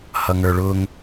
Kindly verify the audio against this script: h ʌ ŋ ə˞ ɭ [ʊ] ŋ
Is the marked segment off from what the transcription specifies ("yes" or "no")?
no